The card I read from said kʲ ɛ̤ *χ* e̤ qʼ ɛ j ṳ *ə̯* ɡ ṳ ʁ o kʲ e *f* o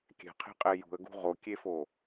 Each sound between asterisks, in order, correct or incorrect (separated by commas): incorrect, correct, correct